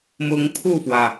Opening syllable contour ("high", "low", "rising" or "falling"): rising